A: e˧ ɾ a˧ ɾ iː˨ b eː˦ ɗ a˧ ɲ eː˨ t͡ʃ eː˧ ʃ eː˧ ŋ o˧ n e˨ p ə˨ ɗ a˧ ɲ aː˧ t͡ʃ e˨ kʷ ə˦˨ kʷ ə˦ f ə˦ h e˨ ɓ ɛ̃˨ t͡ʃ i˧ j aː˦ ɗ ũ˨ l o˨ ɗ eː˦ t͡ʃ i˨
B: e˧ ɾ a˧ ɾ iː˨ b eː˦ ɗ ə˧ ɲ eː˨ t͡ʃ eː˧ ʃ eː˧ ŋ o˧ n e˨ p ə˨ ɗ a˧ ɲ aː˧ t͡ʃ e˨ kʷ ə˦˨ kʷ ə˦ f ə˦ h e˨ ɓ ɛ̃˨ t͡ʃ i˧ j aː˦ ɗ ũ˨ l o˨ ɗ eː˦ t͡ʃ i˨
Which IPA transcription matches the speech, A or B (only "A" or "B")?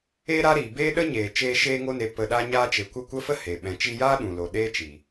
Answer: B